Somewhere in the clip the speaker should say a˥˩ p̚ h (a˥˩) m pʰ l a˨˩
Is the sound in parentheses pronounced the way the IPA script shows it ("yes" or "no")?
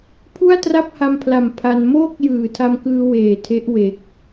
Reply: no